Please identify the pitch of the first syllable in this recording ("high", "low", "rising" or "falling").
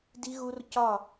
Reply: high